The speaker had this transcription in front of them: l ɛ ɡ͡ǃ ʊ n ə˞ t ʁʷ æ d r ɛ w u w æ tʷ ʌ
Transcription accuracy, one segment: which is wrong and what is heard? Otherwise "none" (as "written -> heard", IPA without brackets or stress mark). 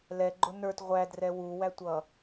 none